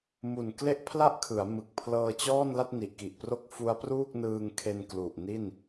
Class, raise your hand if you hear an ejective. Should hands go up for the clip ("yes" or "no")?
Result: no